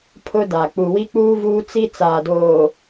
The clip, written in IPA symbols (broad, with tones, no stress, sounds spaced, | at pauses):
pʰ ʊ˦ d a˨ k͡p u˨ w i˦ k͡p uː˦ v uː˦ t͡s i˦ t͡s aː˨ d oː˨